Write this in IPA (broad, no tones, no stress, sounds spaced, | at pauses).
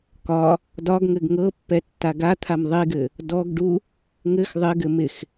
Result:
k ɒ | d ɒ ɡ ŋ ɘ ɡ ŋ ɤ pː ɛ tː a ɡ a t̪ʰ a m ðˤ i ɡ ɘ | d ɔ ɡ ɖ u | ŋ ɘ x ðˤ ɪ ɡ ɘ m ɪ x